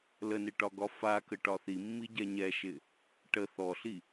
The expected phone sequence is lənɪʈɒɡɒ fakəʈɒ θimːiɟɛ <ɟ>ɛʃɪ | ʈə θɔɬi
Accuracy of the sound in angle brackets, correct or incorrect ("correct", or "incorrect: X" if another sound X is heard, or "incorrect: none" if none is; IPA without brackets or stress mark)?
incorrect: ɲ